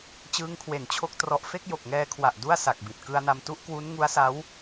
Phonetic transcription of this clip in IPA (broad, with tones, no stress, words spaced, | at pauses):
t͡ɕɯː˦˥ŋkʰwe˨˩nt͡ɕʰo˥˩k̚ trɔ˨˩ʔfe˥˩k̚ jo˨˩k̚ŋɛː˧kʰwa˨˩ʔ du˥˩a̯sa˨˩k̚bi˨˩t̚ kɯ˧a̯na˧m tu˦˥ʔkwu˦˥n ŋu˦˥a̯sa˦˥w